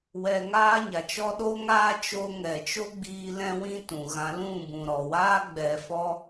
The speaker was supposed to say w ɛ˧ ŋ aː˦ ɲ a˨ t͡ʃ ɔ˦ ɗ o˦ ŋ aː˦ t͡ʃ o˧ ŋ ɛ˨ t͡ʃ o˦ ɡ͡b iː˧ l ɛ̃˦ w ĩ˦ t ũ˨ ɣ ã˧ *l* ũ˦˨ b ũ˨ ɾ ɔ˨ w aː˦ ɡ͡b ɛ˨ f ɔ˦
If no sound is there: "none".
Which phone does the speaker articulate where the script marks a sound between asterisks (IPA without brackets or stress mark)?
l